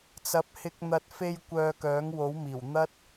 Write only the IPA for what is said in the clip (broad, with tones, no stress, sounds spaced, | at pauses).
t͡s ɐ˨ p̚ h ɪ˧ k̚ n̪ ɐ˨ t̚ f e˧ j kʷ œː˧ k œː˨˥ ŋ w o˨˥ w m iː˨˩ w n̪ ɐ˥ t̚